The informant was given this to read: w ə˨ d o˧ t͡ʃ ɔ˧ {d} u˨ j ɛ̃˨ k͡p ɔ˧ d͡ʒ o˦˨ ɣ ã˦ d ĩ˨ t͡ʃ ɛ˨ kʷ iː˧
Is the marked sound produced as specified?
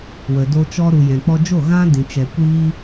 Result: no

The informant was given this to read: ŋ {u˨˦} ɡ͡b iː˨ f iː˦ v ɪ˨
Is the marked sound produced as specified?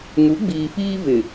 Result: yes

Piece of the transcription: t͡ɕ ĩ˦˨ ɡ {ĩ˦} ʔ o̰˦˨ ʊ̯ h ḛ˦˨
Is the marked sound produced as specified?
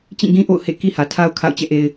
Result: yes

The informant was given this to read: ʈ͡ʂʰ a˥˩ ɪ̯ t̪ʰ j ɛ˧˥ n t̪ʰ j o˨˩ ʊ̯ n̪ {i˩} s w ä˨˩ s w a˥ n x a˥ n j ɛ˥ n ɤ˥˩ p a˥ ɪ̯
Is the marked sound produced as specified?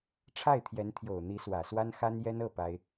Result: no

